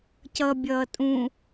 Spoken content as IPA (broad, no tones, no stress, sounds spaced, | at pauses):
c ʌ bʲ ʌː tʼ ũ